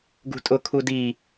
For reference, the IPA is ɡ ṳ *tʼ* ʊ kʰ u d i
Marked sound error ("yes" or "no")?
no